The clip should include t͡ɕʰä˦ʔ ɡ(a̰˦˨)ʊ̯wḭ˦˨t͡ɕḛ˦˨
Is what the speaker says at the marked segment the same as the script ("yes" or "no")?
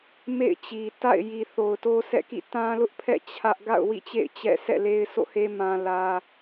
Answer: yes